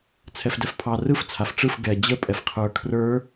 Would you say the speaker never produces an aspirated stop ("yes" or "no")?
no